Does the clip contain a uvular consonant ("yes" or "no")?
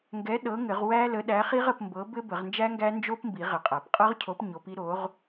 yes